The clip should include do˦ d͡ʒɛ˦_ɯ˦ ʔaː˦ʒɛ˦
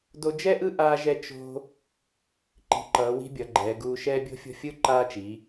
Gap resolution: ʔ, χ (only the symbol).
ʔ